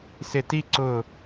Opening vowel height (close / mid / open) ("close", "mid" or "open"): close